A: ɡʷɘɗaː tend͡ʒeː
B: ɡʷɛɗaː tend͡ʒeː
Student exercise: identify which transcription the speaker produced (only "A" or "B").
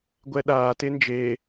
B